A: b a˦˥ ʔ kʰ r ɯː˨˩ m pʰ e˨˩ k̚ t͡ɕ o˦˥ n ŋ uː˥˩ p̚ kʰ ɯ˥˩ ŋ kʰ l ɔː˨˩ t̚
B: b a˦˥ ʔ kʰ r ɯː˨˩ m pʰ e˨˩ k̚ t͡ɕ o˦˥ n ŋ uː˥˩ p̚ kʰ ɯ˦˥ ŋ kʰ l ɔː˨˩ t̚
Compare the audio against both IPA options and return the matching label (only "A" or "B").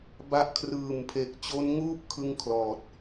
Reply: A